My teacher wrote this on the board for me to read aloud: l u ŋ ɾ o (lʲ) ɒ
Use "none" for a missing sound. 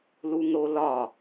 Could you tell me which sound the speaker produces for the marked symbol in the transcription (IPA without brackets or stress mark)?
l